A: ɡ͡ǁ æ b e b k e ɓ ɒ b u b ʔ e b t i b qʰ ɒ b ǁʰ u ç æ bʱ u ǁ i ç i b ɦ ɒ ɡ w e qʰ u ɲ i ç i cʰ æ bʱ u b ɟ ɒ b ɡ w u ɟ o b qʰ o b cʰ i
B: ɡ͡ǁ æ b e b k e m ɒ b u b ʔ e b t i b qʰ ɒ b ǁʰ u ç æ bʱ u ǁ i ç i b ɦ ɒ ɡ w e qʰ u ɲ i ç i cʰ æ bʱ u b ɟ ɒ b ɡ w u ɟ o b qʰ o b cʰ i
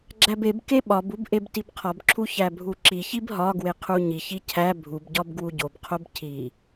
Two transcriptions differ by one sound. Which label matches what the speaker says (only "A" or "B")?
A